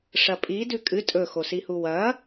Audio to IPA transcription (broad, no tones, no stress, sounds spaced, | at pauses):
ʂ ɐ pʼ i d ʉ kʼ ɨ tʼ ɵ x o s i h u w ɐ